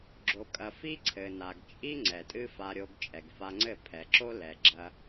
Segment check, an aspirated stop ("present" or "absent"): present